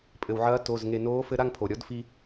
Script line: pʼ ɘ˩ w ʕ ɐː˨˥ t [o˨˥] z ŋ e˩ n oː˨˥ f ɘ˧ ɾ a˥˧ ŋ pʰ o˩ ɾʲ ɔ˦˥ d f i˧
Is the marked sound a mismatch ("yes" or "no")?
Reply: yes